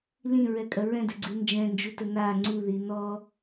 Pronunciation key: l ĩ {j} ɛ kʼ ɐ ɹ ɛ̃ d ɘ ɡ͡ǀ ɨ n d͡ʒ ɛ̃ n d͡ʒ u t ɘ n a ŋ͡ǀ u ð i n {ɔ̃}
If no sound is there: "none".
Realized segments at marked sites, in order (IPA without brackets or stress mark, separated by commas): ɹ, ɔ